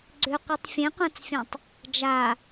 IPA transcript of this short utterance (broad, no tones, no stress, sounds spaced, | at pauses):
ɡ͡ǀ ʏ qʷ i tˤ fʲ ẽ qʷ ã t͡s fʲ ã tˤ | d͡ʒ a